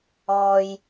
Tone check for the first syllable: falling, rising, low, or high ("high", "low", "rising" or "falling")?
low